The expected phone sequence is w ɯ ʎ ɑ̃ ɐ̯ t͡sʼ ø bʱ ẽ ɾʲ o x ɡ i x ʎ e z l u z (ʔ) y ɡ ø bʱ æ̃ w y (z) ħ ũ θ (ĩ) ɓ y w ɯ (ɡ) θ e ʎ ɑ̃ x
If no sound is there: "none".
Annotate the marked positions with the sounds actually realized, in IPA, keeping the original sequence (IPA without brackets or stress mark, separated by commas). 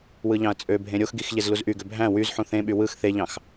ʔ, z, ẽ, x